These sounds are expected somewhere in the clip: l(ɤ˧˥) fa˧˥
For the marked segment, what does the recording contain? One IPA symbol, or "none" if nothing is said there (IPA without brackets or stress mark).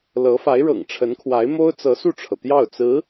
ɤ˧˥